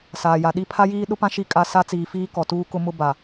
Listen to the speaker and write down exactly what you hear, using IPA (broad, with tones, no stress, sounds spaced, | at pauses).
s aː˨ j a˨ ɗ i˦ pʰ a˦ j iː˦ ɗ ʊ˦ p ã˦ ʃ i˦ kʼ a˦ s a˦ t͡s iː˨ f iː˦ k ɔ˨ t uː˦ k ʊ˦ m ʊ˦ b a˨